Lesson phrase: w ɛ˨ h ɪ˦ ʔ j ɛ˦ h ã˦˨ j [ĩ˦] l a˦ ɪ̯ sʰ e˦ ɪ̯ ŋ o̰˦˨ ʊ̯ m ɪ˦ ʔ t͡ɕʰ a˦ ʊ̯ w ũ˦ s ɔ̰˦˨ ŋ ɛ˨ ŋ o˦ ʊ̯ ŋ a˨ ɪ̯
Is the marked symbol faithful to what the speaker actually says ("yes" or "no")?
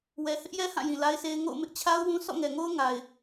no